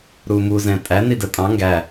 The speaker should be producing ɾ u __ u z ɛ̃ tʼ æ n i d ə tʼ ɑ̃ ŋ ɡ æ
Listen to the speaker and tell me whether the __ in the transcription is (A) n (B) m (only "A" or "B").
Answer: B